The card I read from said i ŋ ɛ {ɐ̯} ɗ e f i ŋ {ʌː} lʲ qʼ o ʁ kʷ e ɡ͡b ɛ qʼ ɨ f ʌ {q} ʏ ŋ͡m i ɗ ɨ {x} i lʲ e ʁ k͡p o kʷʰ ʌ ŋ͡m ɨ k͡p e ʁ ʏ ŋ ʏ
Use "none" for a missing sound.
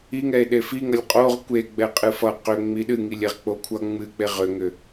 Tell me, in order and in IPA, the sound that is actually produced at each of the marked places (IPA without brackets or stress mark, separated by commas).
e̯, ʌ, q, ŋ